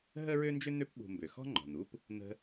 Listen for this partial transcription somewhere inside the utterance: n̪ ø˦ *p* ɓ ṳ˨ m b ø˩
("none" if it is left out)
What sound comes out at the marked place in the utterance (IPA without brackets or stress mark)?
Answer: p